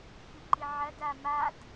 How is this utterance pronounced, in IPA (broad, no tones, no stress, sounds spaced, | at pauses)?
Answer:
ç ʉ ǃ i ʕ ɐ d a m a d